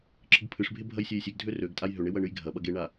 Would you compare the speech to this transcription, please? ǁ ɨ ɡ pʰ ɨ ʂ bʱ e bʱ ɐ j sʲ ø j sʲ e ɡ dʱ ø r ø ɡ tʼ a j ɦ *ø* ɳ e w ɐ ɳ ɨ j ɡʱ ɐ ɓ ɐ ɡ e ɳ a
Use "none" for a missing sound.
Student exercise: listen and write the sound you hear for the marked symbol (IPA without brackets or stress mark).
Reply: ø